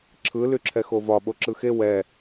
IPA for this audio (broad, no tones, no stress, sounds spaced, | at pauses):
ǁʰ ɯ l y ǁʰ ɛ x o v ɒ ɓ o ǁ ɯ x e w ɛ